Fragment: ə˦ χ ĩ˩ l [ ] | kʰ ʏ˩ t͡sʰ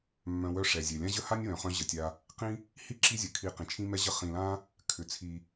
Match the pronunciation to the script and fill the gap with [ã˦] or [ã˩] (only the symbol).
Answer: ã˦